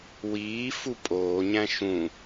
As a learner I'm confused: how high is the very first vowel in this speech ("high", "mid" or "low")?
high